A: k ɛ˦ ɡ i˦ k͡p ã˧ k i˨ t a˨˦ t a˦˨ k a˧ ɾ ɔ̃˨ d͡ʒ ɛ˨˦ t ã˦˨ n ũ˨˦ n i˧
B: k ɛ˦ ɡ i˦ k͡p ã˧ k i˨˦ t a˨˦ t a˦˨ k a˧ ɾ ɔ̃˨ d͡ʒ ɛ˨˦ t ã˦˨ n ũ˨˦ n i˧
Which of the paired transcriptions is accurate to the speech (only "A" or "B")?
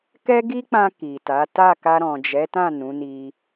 A